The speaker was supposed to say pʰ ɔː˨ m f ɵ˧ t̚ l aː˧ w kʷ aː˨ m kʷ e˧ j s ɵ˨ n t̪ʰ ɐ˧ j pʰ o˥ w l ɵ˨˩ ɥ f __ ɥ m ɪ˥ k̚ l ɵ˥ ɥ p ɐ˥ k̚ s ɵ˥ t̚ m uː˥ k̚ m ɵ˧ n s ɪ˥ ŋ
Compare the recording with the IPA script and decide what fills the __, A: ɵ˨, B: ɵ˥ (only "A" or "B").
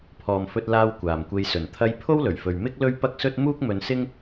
A